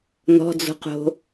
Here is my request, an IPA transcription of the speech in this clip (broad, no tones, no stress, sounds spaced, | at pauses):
n ɔ̤ d͡z o̤ q o̤